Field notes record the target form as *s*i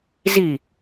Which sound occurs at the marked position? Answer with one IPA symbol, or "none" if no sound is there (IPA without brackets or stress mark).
z